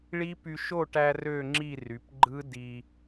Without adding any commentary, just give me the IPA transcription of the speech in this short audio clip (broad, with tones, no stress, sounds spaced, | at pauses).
ɭ i˦˥ p y˧ ʃ o˥˧ ʈ æ˧ r ø˥˧ ŋ͡ǁ i˥˧ r y˩˧ p ɡ͡ǃ ɯ˦˥ d i˧